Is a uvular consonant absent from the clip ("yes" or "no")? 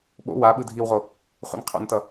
no